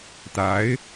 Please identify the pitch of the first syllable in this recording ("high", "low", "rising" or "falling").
rising